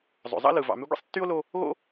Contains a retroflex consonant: no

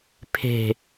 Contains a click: no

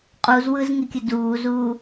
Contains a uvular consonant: yes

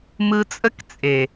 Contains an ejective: yes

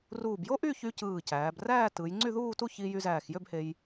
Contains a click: yes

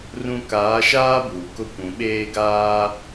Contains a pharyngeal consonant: no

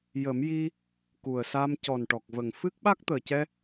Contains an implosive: yes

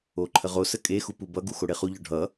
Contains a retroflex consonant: yes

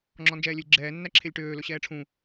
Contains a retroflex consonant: yes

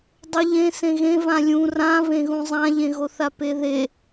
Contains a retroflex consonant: no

